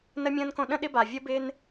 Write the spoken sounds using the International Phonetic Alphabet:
n ə˧ mʲ ə̃ː˧ n k õ˧ ɗ ə̃˧ ɗ ɪ˧ b a˩ vʲ ə˧ b ɪː˧ n

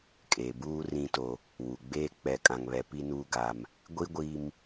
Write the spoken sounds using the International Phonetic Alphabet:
kʼ eː˨ b uː˦ r ĩ˦ t o˦ | w u˨ ɡ͡b eː˦ k͡p ɛ˦ kʼ ã˦ ŋ β ɛ˦ p i˦ n uː˦ ɡ a˦ m | ɡʷ i˦ ɡʷ i˦ m

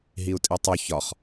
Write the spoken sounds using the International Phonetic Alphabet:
ɦ i u̯ tʼ i tˤ u ç ɒ χ

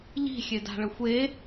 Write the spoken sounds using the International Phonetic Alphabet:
ʎ i̤ xʲ e d a̤ ɭ ə xʷ e

